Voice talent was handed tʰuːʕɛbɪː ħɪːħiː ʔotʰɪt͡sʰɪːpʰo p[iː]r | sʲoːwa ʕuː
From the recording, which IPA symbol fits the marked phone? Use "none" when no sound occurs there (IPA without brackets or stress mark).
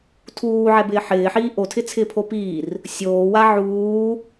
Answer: iː